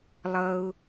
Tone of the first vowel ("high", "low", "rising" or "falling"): high